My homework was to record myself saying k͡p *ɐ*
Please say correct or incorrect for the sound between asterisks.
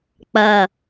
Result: correct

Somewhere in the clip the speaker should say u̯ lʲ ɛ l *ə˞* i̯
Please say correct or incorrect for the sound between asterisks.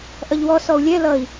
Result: incorrect: ʌ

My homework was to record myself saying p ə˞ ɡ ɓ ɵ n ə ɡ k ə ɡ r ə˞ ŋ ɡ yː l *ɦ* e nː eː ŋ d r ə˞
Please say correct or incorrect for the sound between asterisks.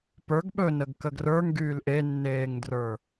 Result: incorrect: ʔ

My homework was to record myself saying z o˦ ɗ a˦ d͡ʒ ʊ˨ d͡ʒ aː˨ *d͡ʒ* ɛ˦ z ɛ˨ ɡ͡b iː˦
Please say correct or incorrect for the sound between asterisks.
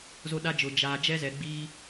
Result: correct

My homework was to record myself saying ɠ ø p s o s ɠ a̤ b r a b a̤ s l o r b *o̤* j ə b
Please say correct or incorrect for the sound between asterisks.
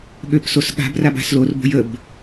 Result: correct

